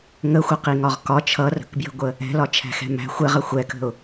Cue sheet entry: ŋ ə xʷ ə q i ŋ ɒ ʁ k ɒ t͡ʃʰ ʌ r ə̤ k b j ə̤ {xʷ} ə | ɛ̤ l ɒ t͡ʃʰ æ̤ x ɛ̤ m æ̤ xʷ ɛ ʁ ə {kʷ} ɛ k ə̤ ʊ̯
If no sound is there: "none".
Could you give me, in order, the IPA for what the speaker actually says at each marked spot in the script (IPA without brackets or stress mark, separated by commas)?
ɡʷ, xʷ